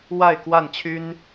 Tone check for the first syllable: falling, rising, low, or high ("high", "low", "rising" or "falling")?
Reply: falling